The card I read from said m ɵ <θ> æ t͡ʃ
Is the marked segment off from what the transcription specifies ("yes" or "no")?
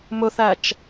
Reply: no